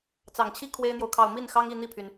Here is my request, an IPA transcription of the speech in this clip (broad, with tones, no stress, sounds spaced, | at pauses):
t͡s ɑ˨˩ ŋ t͡ɕʰ i˥ kʰ w e˥ ɪ̯ n̪ j o˨ ʊ̯ kʰ ɑ˥˧ ʊ̯ m i˥˩ n x ɑ˥ ŋ i˥˧ n̪ i˥˩ pʰ y˩ n